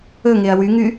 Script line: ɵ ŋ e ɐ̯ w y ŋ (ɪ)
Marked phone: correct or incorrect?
incorrect